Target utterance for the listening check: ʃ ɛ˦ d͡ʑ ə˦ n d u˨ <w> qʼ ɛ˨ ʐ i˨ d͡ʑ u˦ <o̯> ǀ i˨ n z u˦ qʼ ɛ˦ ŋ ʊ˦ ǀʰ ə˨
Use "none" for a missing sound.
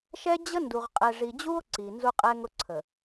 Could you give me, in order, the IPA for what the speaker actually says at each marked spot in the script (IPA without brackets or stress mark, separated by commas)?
ʁ, o̯